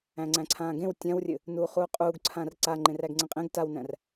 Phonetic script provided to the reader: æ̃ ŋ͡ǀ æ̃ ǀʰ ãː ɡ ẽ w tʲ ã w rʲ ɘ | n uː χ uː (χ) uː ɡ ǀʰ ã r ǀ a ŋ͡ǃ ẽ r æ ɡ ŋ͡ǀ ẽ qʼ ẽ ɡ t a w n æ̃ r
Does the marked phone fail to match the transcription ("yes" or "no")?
yes